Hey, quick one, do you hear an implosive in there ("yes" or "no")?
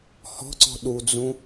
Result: yes